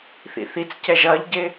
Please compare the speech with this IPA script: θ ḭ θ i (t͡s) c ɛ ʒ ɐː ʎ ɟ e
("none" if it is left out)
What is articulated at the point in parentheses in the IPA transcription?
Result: t͡s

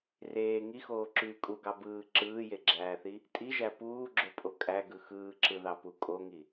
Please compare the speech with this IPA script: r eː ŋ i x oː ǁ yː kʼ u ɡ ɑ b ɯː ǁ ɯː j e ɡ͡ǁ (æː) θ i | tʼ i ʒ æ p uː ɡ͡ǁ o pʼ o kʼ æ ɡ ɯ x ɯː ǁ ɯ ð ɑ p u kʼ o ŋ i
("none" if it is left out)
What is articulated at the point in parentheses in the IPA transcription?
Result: æː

